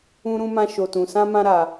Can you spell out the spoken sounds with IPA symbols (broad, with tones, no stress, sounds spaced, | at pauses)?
ũ˦ ɾ ũ˦ m ã˦ ʃ o˧ t ũ˧ s ã˦ m ã˦ ɾ a˧